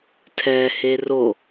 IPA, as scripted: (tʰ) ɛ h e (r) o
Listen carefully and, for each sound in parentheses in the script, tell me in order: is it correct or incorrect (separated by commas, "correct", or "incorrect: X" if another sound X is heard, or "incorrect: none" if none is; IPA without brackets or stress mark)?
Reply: correct, correct